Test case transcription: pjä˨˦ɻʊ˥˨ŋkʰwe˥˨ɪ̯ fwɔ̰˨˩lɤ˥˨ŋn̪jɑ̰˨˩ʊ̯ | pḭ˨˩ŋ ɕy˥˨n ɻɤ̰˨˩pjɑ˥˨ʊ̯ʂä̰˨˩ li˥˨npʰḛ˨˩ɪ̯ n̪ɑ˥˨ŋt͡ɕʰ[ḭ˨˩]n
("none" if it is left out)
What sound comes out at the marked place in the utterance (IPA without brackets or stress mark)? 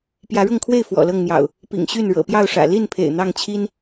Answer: i˦